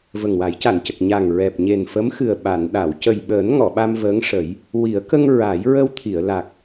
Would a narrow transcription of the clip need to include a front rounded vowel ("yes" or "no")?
no